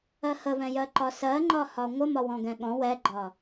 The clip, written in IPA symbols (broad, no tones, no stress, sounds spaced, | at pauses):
ɜ h ə v ɛ̃ j ɜ ǃ ɒ s ɜ ŋ͡ǃ ɒ h ɒ ŋʷ ə m ɒ w ɔ̃ ɡ ɛ̃ ɠ ɔ̃ w ɛ ɡ͡ǃ ɒ